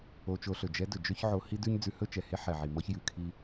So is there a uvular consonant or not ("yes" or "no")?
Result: no